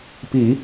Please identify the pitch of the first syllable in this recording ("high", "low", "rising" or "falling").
low